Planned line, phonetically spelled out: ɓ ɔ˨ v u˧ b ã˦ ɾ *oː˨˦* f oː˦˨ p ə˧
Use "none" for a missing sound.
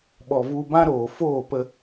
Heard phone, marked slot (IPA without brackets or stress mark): oː˨